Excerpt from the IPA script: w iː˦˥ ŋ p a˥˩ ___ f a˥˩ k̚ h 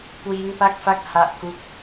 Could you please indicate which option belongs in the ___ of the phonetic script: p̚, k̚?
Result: k̚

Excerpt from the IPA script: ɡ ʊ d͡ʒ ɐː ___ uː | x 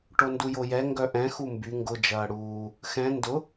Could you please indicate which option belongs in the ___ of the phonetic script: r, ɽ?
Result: ɽ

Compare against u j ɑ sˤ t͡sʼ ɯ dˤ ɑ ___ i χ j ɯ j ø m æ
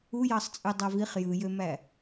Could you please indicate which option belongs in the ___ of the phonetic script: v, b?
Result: v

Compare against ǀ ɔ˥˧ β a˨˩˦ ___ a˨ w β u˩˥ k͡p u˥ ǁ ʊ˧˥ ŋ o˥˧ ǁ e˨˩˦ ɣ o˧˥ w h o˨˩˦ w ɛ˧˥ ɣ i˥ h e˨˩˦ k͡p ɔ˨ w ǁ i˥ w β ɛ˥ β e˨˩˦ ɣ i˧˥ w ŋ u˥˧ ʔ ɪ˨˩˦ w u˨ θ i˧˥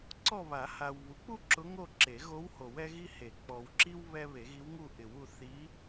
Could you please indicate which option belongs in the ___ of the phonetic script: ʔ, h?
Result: h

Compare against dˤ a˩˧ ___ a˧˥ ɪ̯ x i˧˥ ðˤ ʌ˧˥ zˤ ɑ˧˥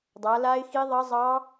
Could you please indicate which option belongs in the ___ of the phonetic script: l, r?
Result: l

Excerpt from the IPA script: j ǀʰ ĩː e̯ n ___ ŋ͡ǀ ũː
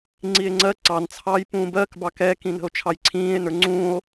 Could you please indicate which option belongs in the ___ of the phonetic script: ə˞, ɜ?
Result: ə˞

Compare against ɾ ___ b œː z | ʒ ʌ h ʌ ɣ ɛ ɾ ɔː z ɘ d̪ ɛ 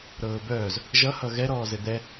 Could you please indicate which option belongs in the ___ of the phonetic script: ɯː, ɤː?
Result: ɤː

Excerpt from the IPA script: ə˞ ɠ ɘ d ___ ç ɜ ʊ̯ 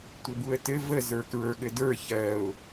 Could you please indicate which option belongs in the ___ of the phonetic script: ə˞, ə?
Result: ə˞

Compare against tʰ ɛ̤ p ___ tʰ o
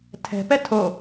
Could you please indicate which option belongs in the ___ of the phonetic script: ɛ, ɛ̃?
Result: ɛ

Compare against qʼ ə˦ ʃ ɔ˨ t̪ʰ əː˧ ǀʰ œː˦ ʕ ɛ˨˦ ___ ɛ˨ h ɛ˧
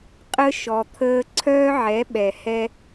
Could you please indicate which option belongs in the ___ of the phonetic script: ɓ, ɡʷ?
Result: ɓ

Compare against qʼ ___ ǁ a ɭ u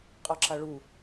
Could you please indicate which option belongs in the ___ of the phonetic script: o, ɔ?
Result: ɔ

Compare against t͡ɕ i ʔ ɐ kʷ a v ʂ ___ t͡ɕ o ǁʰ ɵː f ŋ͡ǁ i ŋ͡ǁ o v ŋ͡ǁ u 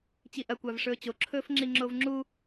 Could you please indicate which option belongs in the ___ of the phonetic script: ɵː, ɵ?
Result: ɵː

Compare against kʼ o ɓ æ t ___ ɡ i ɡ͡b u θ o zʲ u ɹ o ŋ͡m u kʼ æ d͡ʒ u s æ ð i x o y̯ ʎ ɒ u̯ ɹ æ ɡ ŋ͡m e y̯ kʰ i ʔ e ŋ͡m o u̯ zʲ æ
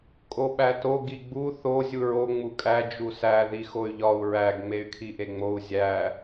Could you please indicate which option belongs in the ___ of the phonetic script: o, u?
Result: o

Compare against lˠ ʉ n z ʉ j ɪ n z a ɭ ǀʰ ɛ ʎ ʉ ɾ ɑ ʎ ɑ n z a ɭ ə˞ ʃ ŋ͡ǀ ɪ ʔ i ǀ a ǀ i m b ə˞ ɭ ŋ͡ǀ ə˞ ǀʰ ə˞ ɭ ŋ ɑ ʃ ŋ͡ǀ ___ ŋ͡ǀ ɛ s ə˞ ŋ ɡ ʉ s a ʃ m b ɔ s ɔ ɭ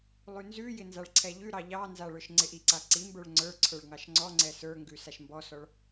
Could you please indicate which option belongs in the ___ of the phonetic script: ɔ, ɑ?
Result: ɔ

